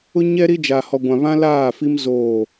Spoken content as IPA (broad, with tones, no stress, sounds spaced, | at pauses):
ʊ˦ ɲ ɛ˦ ɾ i˦ d͡ʒ a˨ h ɔ˨ ɡʷ ã˨ β ã˦ l aː˦˨ f i˦ m z oː˦˨